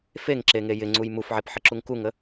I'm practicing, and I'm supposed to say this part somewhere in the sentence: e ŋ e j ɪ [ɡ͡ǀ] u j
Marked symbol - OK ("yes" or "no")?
no